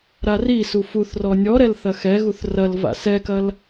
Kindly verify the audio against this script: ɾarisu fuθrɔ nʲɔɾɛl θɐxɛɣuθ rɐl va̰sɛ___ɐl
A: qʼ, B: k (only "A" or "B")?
B